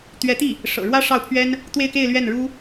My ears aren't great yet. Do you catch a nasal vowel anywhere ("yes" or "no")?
no